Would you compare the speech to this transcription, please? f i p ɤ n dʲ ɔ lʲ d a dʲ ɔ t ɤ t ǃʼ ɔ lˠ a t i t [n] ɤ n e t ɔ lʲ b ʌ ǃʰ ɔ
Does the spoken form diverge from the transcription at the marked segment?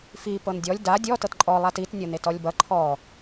yes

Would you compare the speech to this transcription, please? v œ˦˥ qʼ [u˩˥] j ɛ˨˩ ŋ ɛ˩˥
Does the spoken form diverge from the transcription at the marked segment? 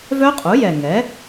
no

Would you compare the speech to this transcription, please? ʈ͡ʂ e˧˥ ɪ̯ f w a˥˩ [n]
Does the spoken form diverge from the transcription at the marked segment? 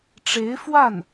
no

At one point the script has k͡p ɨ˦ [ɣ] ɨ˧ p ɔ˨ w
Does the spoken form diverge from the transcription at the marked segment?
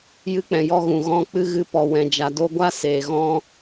no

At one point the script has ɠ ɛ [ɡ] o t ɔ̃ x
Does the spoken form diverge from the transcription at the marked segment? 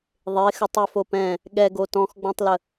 no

